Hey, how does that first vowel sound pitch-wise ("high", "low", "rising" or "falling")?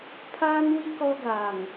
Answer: high